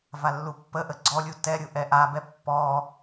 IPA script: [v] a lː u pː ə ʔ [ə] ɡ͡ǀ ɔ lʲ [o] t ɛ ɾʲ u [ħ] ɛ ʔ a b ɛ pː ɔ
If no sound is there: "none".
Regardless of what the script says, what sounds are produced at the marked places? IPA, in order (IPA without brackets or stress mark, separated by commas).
v, ə, u, ʔ